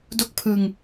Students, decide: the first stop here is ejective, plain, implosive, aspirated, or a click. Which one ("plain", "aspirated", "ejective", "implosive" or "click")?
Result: plain